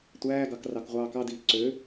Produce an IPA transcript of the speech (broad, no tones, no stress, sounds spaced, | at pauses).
tʷ æː ɡ ɑ k r ɑ k ʁʷ ɑː k ɑ d iː ǀ ø